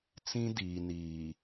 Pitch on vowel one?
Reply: high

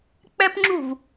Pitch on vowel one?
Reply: high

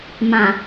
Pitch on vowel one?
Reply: low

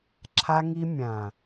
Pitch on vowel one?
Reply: high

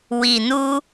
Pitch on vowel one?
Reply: low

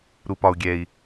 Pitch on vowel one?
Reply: low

